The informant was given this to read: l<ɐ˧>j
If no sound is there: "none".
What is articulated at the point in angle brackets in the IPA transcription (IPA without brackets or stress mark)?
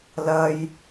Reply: ɐ˧